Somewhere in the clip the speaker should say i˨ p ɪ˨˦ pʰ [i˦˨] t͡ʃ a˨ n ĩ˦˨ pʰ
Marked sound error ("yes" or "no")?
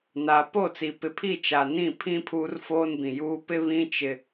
no